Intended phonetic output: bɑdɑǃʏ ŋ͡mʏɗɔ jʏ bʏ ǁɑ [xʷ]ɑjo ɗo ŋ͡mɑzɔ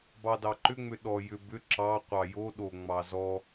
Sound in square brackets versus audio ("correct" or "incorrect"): incorrect